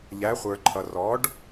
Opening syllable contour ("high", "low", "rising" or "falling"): rising